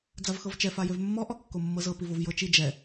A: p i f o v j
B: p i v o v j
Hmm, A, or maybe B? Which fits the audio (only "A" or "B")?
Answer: B